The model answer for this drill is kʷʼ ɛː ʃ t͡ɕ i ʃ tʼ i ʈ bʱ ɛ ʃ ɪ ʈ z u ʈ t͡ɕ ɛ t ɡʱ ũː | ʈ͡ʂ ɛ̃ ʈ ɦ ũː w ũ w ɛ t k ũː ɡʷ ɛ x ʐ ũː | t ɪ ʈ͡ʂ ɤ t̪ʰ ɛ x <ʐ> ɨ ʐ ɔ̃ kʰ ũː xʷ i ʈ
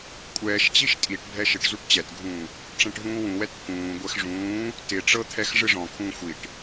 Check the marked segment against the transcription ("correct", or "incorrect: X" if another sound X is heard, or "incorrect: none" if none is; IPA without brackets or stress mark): correct